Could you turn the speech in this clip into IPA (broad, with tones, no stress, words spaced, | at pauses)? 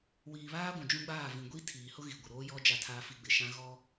wiː˨ βaː˦ɡʷũ˨ d͡ʒũ˦ɡ͡baː˦˨ vĩ˨ɡʷi˦ tʰiː˨hʊ˦ ɣi˨ ɡʷɪ˨ɾoː˦jɔ˦ d͡ʒa˨tʰaː˨fi˨ ɡ͡bɪ˨ʃã˦ ɣɔ˦